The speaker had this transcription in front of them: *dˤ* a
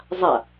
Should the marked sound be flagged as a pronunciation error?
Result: yes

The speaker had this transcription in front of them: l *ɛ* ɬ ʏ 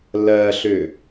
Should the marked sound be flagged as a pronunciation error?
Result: yes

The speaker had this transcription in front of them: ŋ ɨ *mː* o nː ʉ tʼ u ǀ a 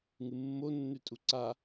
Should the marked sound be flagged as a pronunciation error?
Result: no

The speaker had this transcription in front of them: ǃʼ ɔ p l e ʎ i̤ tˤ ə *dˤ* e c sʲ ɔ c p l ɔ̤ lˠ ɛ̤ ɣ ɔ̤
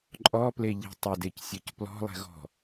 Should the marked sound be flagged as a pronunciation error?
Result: yes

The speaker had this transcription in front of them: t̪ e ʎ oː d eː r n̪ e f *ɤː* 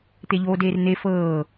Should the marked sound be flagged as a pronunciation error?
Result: no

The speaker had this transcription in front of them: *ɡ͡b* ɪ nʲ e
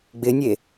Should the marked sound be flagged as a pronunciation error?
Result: no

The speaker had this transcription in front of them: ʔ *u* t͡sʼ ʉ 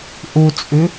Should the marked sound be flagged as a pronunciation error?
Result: no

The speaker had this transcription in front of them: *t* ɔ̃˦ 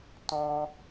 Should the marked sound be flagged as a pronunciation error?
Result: no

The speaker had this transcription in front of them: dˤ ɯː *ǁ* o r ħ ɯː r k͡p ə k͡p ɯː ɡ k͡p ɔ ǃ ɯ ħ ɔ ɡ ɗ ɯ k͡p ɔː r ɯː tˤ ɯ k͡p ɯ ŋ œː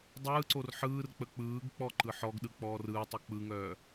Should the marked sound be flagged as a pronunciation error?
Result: yes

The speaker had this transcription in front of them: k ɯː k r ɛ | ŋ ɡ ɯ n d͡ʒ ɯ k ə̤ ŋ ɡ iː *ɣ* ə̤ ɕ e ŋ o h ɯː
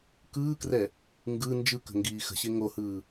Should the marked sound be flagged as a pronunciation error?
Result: yes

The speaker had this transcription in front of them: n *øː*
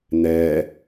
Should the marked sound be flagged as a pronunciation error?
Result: yes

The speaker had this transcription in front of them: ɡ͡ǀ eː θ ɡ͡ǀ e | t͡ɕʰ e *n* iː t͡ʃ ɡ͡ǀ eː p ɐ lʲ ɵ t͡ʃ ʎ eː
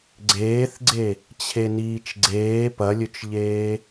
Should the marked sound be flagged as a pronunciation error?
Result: no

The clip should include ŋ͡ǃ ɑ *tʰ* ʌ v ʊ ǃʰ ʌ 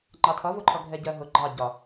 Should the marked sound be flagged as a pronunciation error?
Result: no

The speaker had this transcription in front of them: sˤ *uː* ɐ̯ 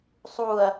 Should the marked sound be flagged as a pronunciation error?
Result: no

